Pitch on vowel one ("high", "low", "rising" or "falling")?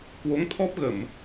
rising